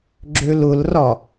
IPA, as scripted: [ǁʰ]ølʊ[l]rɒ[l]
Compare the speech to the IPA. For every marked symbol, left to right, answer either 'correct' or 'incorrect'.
incorrect, correct, incorrect

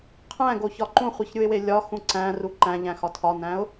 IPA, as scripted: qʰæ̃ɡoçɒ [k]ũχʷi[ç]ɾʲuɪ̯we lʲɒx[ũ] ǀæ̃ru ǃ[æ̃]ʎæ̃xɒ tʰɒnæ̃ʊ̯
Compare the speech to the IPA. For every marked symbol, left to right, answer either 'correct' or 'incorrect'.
incorrect, correct, correct, correct

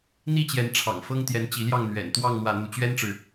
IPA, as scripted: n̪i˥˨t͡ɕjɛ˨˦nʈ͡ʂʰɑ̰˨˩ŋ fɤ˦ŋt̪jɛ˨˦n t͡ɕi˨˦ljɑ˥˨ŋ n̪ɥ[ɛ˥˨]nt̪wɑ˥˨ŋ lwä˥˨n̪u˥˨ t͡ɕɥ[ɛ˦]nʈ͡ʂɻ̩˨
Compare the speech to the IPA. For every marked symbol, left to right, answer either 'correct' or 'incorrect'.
incorrect, correct

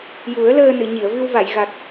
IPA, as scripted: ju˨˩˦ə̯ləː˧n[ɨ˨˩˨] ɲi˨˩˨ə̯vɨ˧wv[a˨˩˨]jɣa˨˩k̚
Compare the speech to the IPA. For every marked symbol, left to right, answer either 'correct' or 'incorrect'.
correct, correct

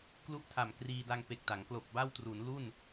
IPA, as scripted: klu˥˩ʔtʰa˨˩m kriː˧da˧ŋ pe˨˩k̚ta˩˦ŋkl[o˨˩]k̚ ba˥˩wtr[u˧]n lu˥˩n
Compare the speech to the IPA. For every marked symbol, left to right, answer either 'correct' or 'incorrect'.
correct, incorrect

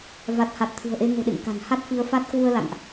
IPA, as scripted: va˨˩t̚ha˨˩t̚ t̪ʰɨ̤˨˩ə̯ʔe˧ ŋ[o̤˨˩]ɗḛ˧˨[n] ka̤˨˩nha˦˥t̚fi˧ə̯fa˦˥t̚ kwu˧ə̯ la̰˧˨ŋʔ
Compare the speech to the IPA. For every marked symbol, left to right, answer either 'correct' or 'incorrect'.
correct, incorrect

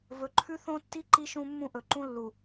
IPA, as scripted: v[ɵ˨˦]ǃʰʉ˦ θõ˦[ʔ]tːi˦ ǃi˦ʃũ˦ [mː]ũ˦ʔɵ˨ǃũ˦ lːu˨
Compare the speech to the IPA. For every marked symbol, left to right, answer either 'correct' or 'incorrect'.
correct, incorrect, correct

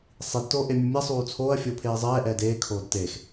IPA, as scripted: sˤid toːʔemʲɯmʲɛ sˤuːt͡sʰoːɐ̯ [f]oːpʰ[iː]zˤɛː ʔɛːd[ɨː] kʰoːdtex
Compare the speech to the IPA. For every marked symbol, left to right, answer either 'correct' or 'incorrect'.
incorrect, incorrect, incorrect

